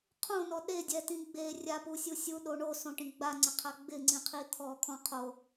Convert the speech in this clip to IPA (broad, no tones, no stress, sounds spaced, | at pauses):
qʰ õ n ɔ ɗ e dʲ ɛ t ĩ ɡ͡b e rʲ a p u sʲ u sʲ u ɗ o ɳ o s õ ʈ ĩ ɡ͡b a ŋ͡ǀ ɪ qʰ a ɡ͡b ɪ ŋ͡ǀ ĩ qʰ i t̪ʰ ɔ kʰ ɔ̃ qʰ o